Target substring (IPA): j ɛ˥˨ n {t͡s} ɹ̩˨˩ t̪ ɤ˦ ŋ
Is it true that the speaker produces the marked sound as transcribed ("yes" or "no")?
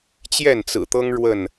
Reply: yes